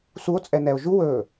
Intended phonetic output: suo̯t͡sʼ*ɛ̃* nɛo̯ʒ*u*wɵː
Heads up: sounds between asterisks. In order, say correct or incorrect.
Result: incorrect: ɛ, correct

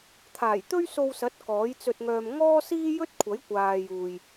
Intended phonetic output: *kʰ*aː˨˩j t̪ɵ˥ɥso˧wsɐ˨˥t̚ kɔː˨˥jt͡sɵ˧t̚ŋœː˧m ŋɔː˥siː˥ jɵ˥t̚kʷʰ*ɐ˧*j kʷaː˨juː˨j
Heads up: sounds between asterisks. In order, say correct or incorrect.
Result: incorrect: t̪ʰ, incorrect: ɐ˨˥

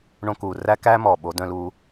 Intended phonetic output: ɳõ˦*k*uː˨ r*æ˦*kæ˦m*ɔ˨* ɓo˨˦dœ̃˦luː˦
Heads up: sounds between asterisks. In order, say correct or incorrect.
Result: correct, correct, correct

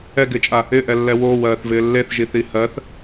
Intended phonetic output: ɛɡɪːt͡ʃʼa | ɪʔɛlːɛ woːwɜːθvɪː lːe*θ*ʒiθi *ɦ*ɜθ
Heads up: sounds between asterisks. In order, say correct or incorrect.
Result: correct, incorrect: h

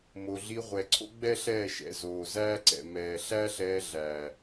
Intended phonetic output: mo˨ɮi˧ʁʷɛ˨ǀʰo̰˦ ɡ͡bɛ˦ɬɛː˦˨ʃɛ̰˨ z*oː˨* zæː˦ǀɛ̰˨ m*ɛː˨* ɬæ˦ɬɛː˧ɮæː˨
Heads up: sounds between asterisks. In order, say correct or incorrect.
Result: correct, correct

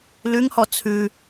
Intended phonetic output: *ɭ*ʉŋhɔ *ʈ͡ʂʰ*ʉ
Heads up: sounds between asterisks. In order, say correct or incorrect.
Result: incorrect: l, incorrect: t͡sʰ

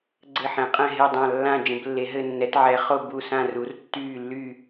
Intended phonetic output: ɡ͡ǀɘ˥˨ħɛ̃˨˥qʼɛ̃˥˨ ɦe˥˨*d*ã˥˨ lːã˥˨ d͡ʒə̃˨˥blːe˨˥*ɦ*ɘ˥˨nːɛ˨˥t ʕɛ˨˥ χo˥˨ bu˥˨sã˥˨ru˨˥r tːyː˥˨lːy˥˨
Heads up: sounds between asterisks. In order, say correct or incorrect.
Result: incorrect: dˤ, correct

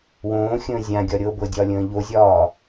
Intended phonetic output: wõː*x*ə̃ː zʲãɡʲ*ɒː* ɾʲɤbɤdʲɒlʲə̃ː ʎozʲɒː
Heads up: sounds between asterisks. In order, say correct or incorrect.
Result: incorrect: xʲ, incorrect: ɒ

